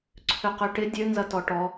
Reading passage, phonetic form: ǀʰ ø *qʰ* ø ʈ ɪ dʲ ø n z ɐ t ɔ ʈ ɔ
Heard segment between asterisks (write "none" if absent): q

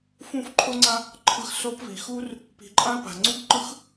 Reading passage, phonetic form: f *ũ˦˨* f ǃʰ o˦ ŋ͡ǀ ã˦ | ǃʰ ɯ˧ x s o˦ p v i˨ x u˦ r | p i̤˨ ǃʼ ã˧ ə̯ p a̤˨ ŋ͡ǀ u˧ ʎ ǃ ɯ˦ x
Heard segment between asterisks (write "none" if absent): ũ˦˨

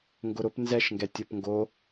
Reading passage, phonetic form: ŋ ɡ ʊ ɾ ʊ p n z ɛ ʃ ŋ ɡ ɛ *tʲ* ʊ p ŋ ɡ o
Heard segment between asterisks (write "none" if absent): tʲ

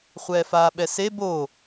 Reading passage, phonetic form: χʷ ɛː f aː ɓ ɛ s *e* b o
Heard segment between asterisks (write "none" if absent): e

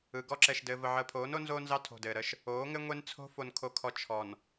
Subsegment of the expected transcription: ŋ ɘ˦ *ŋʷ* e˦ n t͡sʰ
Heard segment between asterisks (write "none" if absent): ŋʷ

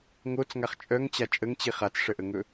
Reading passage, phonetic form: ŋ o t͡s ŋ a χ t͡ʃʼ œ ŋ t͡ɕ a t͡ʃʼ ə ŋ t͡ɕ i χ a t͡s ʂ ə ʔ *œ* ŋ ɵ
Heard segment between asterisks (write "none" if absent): ə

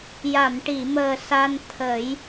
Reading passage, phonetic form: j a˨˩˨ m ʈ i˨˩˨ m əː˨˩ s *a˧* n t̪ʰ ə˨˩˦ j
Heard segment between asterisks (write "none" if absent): a˧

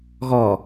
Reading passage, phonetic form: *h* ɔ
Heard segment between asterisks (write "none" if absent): ɣ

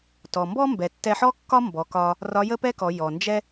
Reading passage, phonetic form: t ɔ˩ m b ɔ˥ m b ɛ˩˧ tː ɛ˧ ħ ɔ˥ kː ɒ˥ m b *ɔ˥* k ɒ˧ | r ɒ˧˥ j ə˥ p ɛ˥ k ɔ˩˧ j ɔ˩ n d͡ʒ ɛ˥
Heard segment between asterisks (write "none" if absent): ɔ˩˧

